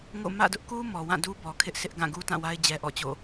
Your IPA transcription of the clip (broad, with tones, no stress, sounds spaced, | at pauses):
ŋ o̰˦˨ m ä̰˦˨ d ʊ˦ ʔ k u˦ m ɔ˨ w ã˦˨ d u˦ b ɔ˨ kʰ ɪ˦ ʔ sʰ ɪ˦ ʔ ɡ ã˦˨ ɡ u˦ t ã˦˨ w a˦ ɪ̯ d͡ʑ ɛ˦ ʔ ɔ̰˦˨ t͡ɕ o̰˦˨